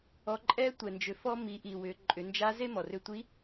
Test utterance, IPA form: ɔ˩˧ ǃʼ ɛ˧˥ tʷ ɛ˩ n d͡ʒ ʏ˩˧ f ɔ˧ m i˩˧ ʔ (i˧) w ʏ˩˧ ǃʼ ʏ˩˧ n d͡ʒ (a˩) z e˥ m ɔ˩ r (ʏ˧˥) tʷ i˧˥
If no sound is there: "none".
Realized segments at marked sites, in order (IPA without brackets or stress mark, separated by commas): i˩, a˧˥, ʏ˧